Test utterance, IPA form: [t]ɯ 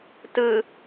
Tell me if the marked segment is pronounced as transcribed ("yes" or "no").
yes